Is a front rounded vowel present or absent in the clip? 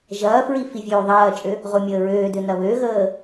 present